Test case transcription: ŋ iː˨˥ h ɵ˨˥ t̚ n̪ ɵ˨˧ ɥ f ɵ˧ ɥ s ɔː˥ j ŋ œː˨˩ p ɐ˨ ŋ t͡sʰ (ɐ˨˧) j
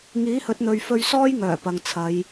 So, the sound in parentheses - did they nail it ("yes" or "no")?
yes